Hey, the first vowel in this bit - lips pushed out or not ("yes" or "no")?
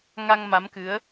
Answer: no